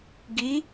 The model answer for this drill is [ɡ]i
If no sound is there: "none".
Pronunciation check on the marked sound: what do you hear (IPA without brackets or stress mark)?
ɡ